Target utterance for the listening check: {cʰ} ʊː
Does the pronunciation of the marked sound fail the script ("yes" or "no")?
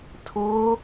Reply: yes